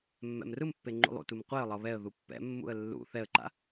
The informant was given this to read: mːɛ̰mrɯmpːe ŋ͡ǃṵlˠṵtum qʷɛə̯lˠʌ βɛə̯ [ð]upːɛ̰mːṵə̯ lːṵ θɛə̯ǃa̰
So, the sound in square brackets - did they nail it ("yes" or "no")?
yes